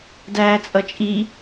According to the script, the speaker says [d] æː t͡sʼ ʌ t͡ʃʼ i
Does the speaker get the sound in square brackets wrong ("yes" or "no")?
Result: no